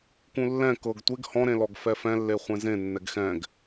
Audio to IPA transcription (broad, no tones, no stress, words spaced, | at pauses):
kũlːɛ̃ kɤɡ tʷeɡ hɔ̃ ɾẽlɔɡfɛfɛ̃ lːeχʷẽzẽ nːɛɡxɛ̃ɡ